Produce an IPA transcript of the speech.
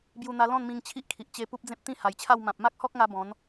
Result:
b j u˧ n̪ a˧ l ɔ̃˥˧ n m ĩ˧ ŋ t͡ɕʰ i˦ ʔ kʰ i˨ ʔ t͡ɕ e˧ p u˦ p̚ d͡z ẽ˦ p̚ t̪ ĩ˥˧ h a˨˩ j t͡ɕʰ a˥˧ w m ã˨ p̚ m a˦ k̚ h ɔ˦ k̚ ŋ a˧ b ɔ̃˨˦ n

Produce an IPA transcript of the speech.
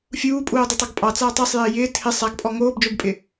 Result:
fʲ uː pʼ uː dˤ ɪ tˤ ɑ ɡ pʼ ɑ t͡s aː tˤ ɑ sˤ j ɪː j ɪː tʰ ɪ sˤ a ɡ pʼ ɔ ŋ oː b d͡ʒ o b pʼ ɪ

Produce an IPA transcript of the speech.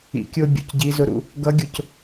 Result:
ḭ˨ kʲ ʊː˧ bʲ ṵ˨ c ɟ i˨˦ z ʊ˧ ɾ ṵ˦˨ | ɡ ʌ˨˦ ɡʲ ʊ˨ c

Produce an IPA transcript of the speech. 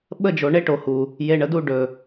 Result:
ɓ ə˦˨ d͡ʒ o˨ ɳ e˦ ʈ o˨ h u˨ | j e˨ ɳ ə˨ d u˦˨ ɖ ɵ˨

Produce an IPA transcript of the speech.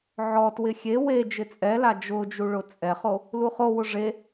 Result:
ʕ ɔ t w ɪ xʲ e w e d͡ʒ ɪ t͡sʼ ɛ l a d͡ʒ ʊ d͡ʒ u ɭ ʊ t͡sʼ ɛ χ o | l u χ o w ʊ ʐ e

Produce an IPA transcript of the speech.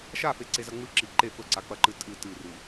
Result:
ʃ a f e ǀ e z ɐ ŋ͡m ɨ ǁ i ǃ e f ɵ ǀ a k͡p ɐ ǃ ɨ tʼ ɨ t ɨ r ɨ

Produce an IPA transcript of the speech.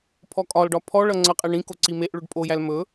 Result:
pʰ ɔ kʼ ɒ l ɖ ɒ pʰ ɔ ɭ ʌ ŋ͡ǀ ʌ qʼ e ɳ ĩ k o ǀ i m e ʔ ɭ ɵ ɖ pʼ o j æ l m ɵ

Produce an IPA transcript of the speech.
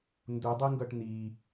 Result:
n d u dˤ i ŋ ɡ ʌ ʈ n̪ i

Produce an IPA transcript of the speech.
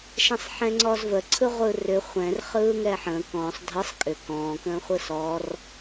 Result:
ʃ ɛ̃ sˤ ħ ɛ̃ ŋ͡ǀ ɔ z v ə ǀʰ ɯ ʁʷ ɯː r ʏ χʷ ɛ̃ r χ ɯː ŋ ɛː ħ ə̃ː k ɔ̃ː sˤ dʱ ɯ sˤ kʼ ʏ k ɔ̃ː k ə̃ː χʷ ɯ s ɔ r

